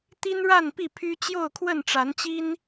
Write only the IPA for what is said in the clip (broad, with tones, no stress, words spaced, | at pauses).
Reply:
t̪i˦nɻa˥˨n pi˥˨pʰy˦ t͡ɕjo˥˨ʊ̯kʰwə˥˨nʈ͡ʂa˨˦nt͡ɕi˦n